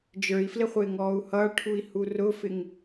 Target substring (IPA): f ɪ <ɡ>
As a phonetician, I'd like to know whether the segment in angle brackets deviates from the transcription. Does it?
yes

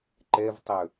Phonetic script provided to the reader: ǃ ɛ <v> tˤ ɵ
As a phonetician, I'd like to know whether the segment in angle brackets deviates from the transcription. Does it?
no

